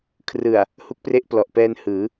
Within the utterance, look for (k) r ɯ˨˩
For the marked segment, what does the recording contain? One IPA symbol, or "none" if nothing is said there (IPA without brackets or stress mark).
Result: kʰ